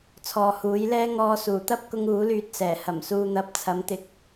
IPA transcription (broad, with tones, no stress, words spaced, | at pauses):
t͡sʰɔː˨huː˨˥jlɛː˥ ŋɔː˧suː˨˩t̪ɐ˥p̚kʊ˧ŋ uː˨˥lyː˧t̚sɛː˨˩ hɐ˨˩msuː˨n̪ɐ˨˥p̚ t͡sʰɐ˨˥mt̪ɪ˨k̚